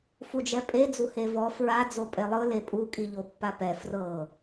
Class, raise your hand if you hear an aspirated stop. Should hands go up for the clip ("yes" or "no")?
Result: no